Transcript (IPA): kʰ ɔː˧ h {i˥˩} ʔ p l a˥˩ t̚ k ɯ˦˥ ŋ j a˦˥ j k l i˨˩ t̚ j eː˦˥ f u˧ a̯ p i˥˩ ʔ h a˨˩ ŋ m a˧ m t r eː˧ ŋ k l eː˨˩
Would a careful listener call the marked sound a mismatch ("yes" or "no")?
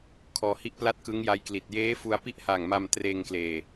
no